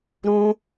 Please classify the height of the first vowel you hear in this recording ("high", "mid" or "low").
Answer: high